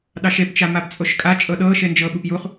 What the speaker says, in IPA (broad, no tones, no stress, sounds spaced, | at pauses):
ɗ ɑ ʃ e p t͡ʃ a m a p t͡sʼ o ʃ kʼ a t͡ʃʼ ɤ ɗ ɤ ʃ e n d͡ʒ ɤ ɓ u p j u χ